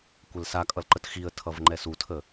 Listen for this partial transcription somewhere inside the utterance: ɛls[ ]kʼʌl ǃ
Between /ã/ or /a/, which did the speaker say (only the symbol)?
a